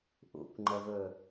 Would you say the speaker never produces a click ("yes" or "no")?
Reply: no